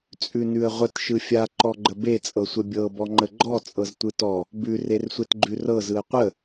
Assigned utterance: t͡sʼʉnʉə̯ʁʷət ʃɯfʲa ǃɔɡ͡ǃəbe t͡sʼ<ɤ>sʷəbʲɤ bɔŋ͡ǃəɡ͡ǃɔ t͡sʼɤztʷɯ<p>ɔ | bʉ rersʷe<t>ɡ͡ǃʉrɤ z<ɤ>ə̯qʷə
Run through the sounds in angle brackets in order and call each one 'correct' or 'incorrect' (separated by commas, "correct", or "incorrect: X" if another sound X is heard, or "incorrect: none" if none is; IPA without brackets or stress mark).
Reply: correct, incorrect: t, correct, incorrect: ɯ